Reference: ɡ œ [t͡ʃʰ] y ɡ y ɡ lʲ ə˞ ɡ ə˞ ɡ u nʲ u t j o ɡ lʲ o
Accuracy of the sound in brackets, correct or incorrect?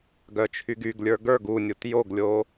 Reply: correct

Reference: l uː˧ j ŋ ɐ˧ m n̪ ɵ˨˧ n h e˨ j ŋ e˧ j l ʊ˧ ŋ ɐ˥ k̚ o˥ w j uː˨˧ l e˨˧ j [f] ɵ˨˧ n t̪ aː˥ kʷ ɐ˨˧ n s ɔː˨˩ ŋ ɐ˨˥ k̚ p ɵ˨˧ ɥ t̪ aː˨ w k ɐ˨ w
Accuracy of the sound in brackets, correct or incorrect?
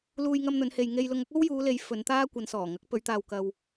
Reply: correct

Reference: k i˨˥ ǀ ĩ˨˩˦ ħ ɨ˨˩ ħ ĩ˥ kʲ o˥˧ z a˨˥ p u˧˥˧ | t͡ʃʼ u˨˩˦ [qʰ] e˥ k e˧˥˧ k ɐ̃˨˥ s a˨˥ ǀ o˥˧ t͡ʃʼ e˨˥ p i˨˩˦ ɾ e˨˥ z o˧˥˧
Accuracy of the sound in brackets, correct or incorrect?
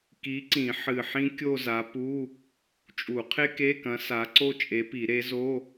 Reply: correct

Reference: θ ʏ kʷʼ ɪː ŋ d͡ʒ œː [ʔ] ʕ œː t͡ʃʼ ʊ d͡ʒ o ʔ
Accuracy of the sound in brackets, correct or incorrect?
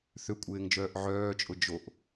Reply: correct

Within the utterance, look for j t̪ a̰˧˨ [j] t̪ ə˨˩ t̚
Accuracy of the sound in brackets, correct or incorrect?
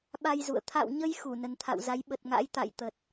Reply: correct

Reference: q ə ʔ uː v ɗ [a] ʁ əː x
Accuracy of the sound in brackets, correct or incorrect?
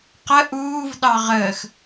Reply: incorrect: ɑ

